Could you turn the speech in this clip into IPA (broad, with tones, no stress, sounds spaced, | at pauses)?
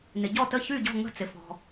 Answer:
n ɪ˩ ɟ ɔ˥˩ t ə˥˩ ç y˥˩ ɟ ɔ̤˥˩ ŋ ə̤˥˩ t͡s ɪ˩ f ɔ̤˩